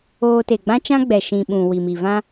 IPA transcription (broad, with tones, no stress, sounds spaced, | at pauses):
oː˧ t e˨ ɡ͡b ã˦ t͡ʃ ã˦ ɡ͡b ɛ˨ ʃ ĩ˨ ɓ ũ˨ w i˨ m i˨ v ã˦